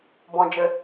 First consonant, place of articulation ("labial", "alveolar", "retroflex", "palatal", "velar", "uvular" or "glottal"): labial